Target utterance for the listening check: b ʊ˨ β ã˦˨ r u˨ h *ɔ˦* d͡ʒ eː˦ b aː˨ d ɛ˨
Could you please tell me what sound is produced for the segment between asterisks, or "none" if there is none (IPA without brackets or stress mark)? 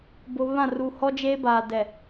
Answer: ɔ˦